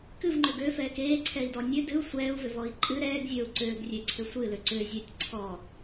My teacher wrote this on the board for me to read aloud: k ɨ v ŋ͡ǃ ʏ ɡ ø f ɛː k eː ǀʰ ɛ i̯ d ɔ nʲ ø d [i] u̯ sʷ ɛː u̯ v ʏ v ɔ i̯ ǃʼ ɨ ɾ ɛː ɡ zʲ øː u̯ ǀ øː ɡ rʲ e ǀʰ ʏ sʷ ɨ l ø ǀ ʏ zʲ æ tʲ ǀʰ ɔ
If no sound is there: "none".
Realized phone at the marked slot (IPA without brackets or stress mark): ɨ